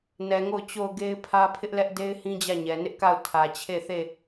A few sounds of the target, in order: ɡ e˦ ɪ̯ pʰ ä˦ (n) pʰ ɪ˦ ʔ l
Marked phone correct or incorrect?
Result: incorrect